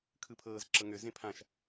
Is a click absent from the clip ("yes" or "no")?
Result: no